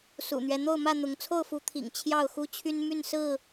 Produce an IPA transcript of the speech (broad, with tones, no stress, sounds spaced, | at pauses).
s ṵ˨˩ n̪ ɥ ɛ˦ n̪ o˥˨ ʊ̯ m ä˥˨ n̪ ʊ˨˦ ŋ t͡sʰ o˥˨ ʊ̯ f u˨˦ t̪ʰ ḭ˨˩ ŋ t͡ɕʰ j ɑ˥˨ ʊ̯ x u˦ t͡ɕʰ y˦ n m y˥˨ n s ɹ̩˥˨